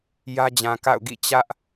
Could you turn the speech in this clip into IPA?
j ä˦ d͡ʑ ã˨ k a̰˦˨ ʊ̯ ɡ ḭ˦˨ t͡ɕ ä˦ ʔ

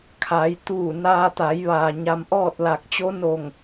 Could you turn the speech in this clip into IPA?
kʰ a˩˧ j t̪ uː˧˩ n aː˧ t̪ a˩˧ j ʋ aː˩ ɲ a˧ m ʔ ɔː˥˨ t̚ l a˧˩ k̚ t͡ɕ o˧˥ n o˧˩ ŋ

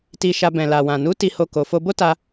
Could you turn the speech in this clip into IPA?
t i˧ ʃ a˧ b ɛ̃˨ l a˨ w ã˨ n u˨˦ t i˧ h o˧ k o˨ f o˧ b o˦ t a˧

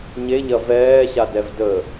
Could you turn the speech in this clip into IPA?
ɲ e ʎ ɐ v ɛː ɕ a d ɛ v d ə

